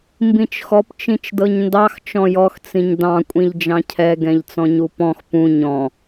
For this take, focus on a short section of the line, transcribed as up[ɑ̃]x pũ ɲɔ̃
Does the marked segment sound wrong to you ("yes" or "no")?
yes